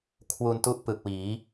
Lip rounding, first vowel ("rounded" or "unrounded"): rounded